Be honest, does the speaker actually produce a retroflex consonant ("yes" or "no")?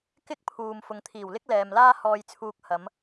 no